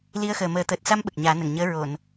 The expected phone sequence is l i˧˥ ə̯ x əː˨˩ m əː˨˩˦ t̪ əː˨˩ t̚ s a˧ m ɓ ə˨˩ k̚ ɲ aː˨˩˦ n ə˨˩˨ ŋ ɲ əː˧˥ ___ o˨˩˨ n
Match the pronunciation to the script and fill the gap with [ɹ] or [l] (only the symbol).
ɹ